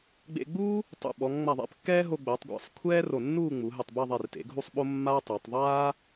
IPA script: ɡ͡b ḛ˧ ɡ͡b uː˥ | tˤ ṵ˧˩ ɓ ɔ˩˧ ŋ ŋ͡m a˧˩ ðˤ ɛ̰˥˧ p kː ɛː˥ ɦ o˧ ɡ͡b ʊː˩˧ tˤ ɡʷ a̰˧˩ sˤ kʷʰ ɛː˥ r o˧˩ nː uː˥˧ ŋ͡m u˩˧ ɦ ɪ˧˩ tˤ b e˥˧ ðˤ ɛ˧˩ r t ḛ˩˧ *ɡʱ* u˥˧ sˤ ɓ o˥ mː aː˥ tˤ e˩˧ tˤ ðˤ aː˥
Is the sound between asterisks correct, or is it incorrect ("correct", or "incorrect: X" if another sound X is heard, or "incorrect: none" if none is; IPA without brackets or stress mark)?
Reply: correct